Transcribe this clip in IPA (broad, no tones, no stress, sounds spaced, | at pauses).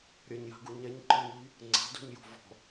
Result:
ɾʲ ɐ ɲ j a̤ ɡ u ɲ ɛ ɲ ǃ ɔ n ʎ i | ŋ͡ǀ a̤ d ṳ ɲ j o̤ v ɔ̤